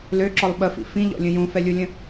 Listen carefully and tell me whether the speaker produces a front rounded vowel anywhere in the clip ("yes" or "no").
yes